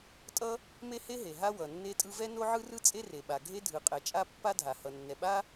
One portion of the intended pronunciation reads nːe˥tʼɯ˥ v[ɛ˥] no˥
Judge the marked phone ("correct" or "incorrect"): correct